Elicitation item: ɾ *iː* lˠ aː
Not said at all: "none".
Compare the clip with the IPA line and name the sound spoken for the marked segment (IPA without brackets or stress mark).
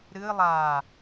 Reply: ɨː